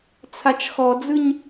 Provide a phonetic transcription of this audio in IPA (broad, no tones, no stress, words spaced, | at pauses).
t͡sʰat͡ʃxɔd͡zɯɲ